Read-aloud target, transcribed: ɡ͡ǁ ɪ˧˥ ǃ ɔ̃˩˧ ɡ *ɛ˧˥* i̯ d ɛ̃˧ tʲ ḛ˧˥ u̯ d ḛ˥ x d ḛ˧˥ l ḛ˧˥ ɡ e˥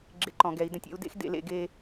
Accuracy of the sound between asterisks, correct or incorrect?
incorrect